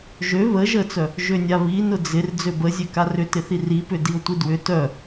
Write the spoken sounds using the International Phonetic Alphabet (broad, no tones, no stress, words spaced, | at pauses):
ʒø βə ʒət͡sœ | ʒønʲaβinʊ d͡zɪr d͡zøbəzʲø karʏtɪθi ripʏ diʊ̯tʷidwʏ tœ